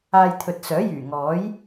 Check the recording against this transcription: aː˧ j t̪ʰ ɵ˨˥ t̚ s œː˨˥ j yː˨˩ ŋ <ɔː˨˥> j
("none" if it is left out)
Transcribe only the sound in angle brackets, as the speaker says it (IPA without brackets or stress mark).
ɔː˨˥